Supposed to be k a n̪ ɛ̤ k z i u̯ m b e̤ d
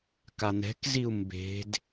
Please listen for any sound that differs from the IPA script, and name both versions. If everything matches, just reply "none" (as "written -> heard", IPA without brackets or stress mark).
none